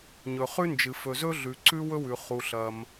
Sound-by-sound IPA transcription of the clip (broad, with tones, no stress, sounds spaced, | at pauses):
ɲ ɵ˩ χ ʉ˥ n d͡ʒ ɨ˩ f ɵ˩ z ɵ˥ ɮ ʉ˩ ǀ ʉ˥ w ɵ˥ w ʉ˩ χ u˩ ɬ ɐ˩ m